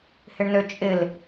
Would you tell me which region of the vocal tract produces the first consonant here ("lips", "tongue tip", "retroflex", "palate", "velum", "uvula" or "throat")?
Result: throat